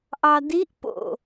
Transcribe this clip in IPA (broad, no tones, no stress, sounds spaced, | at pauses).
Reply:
ʔ ɑ d i ʔ p o̰